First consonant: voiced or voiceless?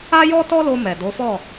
voiced